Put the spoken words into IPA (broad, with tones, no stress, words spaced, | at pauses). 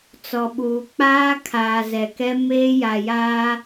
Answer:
t͡sɔ˨ɓuː˨k͡paː˦ kʰaː˨zɛ˨kɛ˦ meː˦ja˨jaː˦